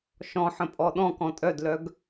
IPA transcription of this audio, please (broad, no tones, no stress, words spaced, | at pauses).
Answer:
ʃɔ̃ħə̃pʼɔ ɗɔ̃kɔ̃ tʼœdlœɡ